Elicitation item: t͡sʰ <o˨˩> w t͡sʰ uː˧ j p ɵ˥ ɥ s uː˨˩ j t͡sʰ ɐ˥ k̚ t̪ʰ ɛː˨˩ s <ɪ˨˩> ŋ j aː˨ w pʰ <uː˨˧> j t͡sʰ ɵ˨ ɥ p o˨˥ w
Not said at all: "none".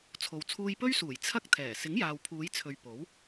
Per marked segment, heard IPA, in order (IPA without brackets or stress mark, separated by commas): o˨, ɪ˨˥, uː˨˧